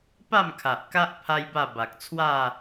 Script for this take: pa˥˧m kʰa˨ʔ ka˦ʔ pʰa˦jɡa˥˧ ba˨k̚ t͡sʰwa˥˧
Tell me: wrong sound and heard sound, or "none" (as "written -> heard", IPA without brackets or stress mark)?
ɡ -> b